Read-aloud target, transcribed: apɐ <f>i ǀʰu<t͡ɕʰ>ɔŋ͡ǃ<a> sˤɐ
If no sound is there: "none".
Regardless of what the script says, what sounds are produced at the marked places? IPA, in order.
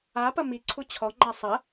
m, t͡ɕʰ, a

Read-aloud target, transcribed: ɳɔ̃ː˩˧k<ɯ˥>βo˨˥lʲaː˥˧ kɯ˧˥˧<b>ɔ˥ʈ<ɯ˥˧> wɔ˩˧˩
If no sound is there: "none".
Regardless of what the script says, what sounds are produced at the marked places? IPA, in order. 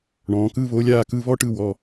ɯ˧˥˧, β, ɯ˥˧

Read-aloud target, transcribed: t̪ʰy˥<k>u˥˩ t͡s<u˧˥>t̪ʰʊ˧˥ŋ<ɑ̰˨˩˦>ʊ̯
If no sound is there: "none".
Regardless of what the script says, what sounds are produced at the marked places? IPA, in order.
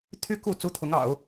k, u˥, ɑ̰˨˩˦

